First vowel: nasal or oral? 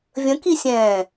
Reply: nasal